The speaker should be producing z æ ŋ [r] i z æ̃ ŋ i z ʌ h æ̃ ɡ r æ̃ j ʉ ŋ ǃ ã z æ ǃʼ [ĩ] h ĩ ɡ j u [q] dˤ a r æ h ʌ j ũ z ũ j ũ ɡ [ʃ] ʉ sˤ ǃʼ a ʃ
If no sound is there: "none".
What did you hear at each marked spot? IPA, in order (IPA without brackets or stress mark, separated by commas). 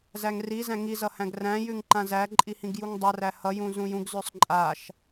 r, i, ŋ, z